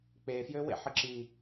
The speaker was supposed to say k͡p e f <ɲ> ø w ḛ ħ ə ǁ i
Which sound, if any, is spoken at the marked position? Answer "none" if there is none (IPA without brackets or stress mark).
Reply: j